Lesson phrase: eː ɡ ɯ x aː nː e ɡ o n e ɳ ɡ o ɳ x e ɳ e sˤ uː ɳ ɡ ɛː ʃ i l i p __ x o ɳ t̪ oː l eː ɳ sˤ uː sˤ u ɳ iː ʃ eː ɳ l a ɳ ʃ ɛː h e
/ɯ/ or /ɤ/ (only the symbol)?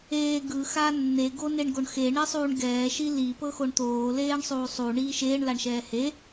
ɤ